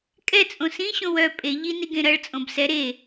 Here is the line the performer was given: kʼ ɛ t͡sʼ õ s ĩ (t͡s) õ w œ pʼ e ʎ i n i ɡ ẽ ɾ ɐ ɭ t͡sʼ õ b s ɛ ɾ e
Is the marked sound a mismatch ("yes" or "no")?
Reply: yes